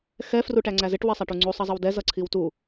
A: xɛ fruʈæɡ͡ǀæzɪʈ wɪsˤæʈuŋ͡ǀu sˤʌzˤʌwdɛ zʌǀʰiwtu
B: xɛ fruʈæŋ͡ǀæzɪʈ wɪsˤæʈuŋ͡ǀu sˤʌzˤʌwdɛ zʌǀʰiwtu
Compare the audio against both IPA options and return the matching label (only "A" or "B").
B